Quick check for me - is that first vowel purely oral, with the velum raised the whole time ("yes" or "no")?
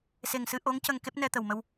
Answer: yes